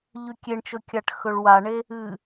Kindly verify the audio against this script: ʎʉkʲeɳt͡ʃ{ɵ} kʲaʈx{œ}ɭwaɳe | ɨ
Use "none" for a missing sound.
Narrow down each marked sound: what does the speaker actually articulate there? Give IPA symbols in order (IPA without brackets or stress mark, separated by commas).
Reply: ɵ, ɵ